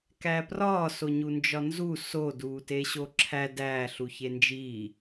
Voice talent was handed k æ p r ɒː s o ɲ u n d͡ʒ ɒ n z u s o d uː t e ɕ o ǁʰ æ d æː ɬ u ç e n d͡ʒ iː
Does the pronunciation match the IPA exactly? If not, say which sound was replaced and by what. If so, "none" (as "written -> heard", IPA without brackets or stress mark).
none